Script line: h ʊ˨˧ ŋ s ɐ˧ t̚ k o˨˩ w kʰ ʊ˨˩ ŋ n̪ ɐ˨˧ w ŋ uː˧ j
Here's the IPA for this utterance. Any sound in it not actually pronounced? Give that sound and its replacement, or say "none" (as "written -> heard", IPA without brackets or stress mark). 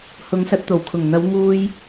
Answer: k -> t̪